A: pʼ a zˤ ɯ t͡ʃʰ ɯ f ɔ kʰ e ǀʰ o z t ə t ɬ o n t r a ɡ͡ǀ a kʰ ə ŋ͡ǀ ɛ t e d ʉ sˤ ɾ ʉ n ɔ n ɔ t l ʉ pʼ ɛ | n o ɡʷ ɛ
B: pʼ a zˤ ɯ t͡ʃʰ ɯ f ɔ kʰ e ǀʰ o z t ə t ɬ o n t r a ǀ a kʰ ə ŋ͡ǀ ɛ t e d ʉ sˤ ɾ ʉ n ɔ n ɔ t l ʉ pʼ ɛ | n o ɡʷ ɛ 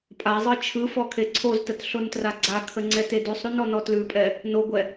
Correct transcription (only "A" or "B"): A